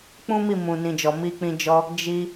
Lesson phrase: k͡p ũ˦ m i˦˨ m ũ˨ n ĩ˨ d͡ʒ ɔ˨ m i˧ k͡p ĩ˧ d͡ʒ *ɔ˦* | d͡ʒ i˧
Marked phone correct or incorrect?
incorrect